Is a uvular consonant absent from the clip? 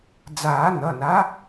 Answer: yes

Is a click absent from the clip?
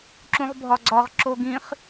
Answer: no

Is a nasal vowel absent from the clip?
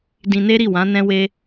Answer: no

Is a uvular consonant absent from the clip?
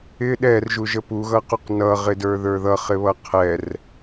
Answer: no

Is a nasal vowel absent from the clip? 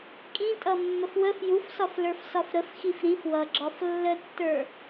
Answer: no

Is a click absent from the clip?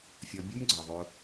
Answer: no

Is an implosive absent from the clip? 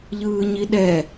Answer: no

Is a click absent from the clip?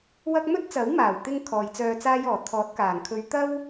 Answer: yes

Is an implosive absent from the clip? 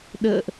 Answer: no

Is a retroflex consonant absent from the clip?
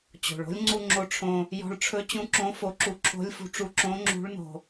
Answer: no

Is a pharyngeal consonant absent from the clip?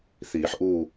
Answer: no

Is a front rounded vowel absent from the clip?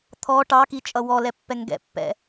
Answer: yes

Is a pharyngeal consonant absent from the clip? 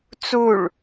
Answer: yes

